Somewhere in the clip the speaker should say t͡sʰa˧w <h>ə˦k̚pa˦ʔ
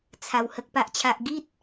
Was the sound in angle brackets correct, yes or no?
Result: yes